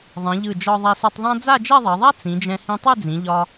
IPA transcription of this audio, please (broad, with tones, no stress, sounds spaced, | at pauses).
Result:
ðˤ ĩ˩˧ ʎ ɯ˧˩ d͡ʒ ɒ˧ ðˤ ɛ˧ s ɯ˧ tˤ ðˤ ã˥ d͡z a˥˧ d͡ʒ ɛ˥˧ ðˤ ɜ˩˧ ðˤ a˥ t͡s ĩ˩˧ d͡ʒ ɛ̃˧ h ĩ˧ tˤ ɯ˥˧ d͡z ĩ˩˧ ʎ ɒ˧